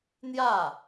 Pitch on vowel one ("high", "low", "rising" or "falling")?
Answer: falling